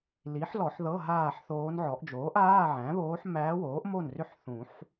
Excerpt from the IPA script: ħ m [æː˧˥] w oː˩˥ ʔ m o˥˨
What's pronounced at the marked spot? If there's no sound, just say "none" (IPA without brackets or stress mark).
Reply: æː˧˥